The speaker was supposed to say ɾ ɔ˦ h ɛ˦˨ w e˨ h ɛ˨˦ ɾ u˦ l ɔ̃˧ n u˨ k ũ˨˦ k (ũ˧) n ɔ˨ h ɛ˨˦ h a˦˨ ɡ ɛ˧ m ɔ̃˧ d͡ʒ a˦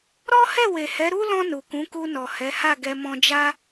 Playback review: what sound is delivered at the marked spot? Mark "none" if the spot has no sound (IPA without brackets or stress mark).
u˧